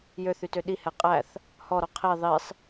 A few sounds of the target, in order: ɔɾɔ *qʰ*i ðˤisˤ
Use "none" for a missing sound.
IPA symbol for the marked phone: qʰ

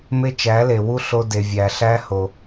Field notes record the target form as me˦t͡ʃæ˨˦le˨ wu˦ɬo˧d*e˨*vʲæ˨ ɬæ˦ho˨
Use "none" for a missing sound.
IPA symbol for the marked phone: e˨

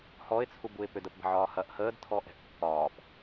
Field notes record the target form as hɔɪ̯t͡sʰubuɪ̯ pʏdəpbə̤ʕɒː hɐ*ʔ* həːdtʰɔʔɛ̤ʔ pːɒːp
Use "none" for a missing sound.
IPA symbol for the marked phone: ʔ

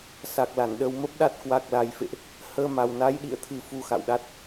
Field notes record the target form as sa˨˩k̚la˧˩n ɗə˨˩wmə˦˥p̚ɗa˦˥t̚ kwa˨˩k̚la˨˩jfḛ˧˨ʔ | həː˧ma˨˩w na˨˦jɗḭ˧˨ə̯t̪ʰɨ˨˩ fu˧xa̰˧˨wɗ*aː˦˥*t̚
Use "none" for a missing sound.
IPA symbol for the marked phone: a˦˥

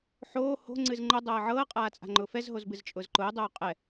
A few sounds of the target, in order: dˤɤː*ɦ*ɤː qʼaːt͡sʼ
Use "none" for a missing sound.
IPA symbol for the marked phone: ʕ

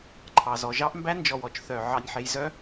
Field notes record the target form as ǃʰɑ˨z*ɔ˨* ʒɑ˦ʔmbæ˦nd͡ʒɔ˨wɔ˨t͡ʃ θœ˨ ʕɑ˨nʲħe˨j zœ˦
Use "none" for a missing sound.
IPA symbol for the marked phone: ɔ˨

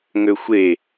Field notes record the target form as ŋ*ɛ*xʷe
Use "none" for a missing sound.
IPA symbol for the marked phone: ø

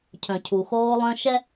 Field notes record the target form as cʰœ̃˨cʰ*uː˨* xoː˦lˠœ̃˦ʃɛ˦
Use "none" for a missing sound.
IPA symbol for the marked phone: u˨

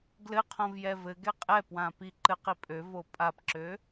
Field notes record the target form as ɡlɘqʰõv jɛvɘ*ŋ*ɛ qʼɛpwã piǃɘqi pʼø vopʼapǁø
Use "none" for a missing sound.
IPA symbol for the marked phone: ɡ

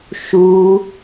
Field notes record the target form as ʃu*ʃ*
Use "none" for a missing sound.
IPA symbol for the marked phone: none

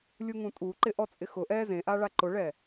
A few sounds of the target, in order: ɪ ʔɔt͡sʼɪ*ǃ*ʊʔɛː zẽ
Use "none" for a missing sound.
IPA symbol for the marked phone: x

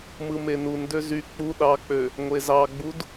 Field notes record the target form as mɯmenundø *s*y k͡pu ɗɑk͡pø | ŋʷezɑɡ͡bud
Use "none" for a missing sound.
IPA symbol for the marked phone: z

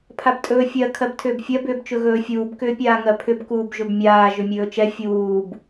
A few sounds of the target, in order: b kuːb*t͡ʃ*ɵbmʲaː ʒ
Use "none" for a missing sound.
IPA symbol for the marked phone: ʒ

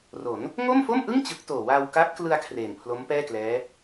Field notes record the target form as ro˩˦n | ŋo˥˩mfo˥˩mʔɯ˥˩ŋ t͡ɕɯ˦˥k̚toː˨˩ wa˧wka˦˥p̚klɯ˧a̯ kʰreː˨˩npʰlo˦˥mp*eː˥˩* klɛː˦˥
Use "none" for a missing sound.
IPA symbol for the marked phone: ɛː˥˩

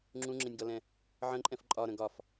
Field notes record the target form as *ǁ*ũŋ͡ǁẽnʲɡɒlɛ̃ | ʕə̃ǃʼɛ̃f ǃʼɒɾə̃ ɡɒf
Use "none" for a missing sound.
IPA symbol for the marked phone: ŋ͡ǁ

